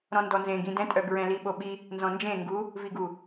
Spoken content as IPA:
ɾ ɔ̃ n d ɔ n z ẽ ɡ ĩ d ɛ̃ tʼ œ ɡ ɹ ɛ̃ l i ɓ o ɓ i | n z ɔ̃ n d͡ʒ ẽ ŋ ɡ u | v i ɡ u

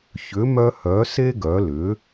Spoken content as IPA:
ç ʏ˩˥ m œ˧ h œ˩˥ s e˥ ɡ œ˩˥ l ʏ˩˥

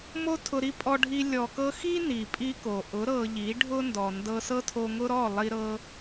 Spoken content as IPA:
m o˦ tʰ ʊ˧ ɾ i˦ pʼ ɔ˧ ɖʱ i˧ lʲ ɔ˨ k ɤ˧ x i˦ n i˨ pʼ i˦ k o˨ ʔ ʊ˨˦ ɾ ɤ˧ ʎ i˨˦ ɖʱ ʊ˦ n d ɔ˨ n d ɤ˧ s ɤ˦ tʰ o˧ ŋ ʊ˦ ɾ ɔ˦˨ lˠ i˧ ɾ ɤ˦

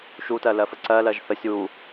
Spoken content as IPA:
ʃ u t ɜ l ɜ f ə ǀ ɜ l ɜ ʒ θ ə sʲ u

